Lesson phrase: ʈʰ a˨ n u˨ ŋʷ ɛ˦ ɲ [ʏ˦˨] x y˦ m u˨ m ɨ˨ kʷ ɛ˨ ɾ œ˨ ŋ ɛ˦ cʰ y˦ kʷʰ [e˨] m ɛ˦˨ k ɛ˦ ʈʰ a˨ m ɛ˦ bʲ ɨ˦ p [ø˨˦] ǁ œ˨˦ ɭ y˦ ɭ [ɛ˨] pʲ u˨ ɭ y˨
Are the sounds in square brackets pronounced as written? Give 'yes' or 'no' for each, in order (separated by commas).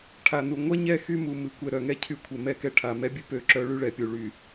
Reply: no, no, yes, yes